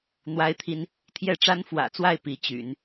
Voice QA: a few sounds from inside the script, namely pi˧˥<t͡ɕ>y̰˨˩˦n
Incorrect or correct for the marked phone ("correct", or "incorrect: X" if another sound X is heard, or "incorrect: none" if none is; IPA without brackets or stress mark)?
correct